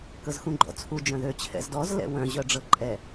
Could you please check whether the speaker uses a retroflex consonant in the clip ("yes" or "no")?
yes